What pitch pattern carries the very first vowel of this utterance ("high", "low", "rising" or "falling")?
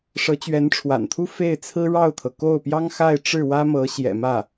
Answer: rising